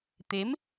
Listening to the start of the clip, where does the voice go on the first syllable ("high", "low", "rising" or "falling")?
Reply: rising